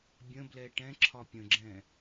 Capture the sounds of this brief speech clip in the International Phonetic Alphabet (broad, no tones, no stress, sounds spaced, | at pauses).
bʲ ə̃ b l ɛ ʈ ɛ̃ ǁʰ ɒ pʲ ə̃ ɡ͡ǁ ɛ̃